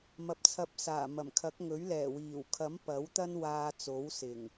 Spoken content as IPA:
m ɐ˨ p̚ t͡sʰ ɐ˧ p̚ s aː˨˩ m ɐ˨˩ m kʰ ɐ˨˥ k̚ ŋ ɵ˨˥ ɥ l ɛː˨˩ w iː˨˩ w kʰ ɐ˨˥ m p ɐ˨˥ w t̪ ɐ˥ n w aː˧ t͡s o˨˥ w s ɪ˨˩ ŋ

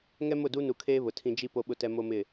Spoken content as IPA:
ŋ ɛ˦ m ʊ˦˨ d u˦ n u˨ kʰ eː˦ β ʊ˨ tʰ ĩ˦ d͡ʒ i˦ p o˦ ɓ ʊ˦ t ɛ˦ m o˦ m ɪ˦˨

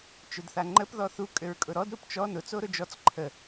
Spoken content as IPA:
t͡ʃ ʊ d θ a ŋ͡ǃ ə p ð ɔ θ u kʼ ʏ ɹ kʼ ʊ ɾ ɔ d ɾ u p t͡ʃ ɔ n ʊ t͡s o ɾ ʊ d͡ʒ ɔ t͡s ǃʰ ə

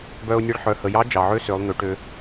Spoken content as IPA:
b œ˧ ʊ̯ nʲ e˧ ɭ ħ œ˩˧ h ə˩˧ j ɑ˧˥ d͡ʒ ɑ˩ ʕ ø˧˥ s ø˩˧ lˠ n̪ ø˩˧ ʈ ø˧

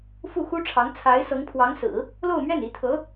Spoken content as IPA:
f u˥˩ x u˥ ʈ͡ʂʰ ɑ˧˥ ŋ t͡sʰ a˧˥ ɪ̯ s ɤ˧˥ ŋ pʰ w ɑ˧˥ ŋ s ɹ̩˨˩˦ | l o˥˧ ʊ̯ m ɥ ɛ˥˩ n i˧˥ t̪ʰ ɤ˧˥

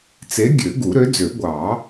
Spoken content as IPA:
t͡s e˨˥ ɡʲ ø˨˩˦ ɡ u˨˩˦ ɾ ø˨˥ d͡z ø˨˩˦ ɡʷ ɑ˨˩˦

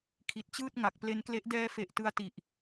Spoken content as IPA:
kʰ i˨˩ t̚ t͡ɕ ɯː˥˩ t̚ ŋ a˨˩ k̚ p l e˧ n k l e˦˥ ʔ d ɛː˧ f e˨˩ ʔ t ɯ˧ a̯ t i˨˩ ʔ

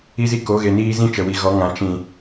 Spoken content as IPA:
i˦ z i˦ k o˨˦ ɣ e˧ n iː˦ z ĩ˦ t͡ʃ ə˨ w i˨ ɣ ɔ˨˦ ŋ ã˨ t͡ʃ ĩ˨

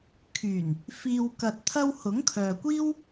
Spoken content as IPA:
kʰ yː˨˩ n | f iː˧ w k ɐ˨ t̚ t̪ʰ ɐ˧ w h ʊ˨˥ ŋ kʰ œː˨ kʷ iː˥ w

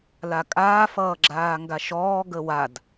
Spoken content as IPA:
l a kʼ aː f ʌː ɡ͡ǁ aː ŋ ɡ a ʃ ɔː ɡ ə w a d

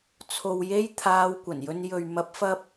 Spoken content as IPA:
t͡sʰ o˨ w j e˧ j t̪ʰ aː˧ w kʷ ɐ˨˩ n j ɵ˧ n j ɵ˨ ɥ m ɐ˨˥ p̚ f ɐ˧ p̚

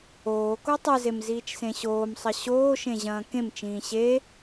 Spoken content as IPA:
oː k o tˤ ɨ z e m z iː t͡ʃ s ẽ ɕ oː m sˤ ɐ ɕ oː ʃ ẽ ʑ ɐ̃ː k ẽ m t͡ʃ ĩː ɕ e

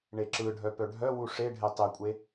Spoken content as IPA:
ɳ e ǁ ɯ ɖʱ œ p œ ɖʱ œ w u ʂ e ɖʱ e tˤ e kʷʼ e

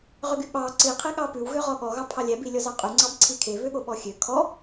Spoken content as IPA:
ʁ ø ɡ y ɓ ɑ ǀ i qʰ e ɠ ɑ p ʉ w ɣ ø ʁ ɔ ɠ ɔ ɣ ɑ pʰ ɑ lʲ æ b i lʲ ɔ z ɑ qʼ ʉ ŋ͡ǀ ɑ b ǀʰ i kʰ e β ø ɠ o ɓ ɔ xʲ ø kʰ ɔ

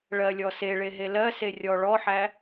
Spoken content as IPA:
ɭ ɜ lʲ ɔ s e ɭ e ɦ e l ɜ s e rʲ ɔ ɭ ɔ ħ æ

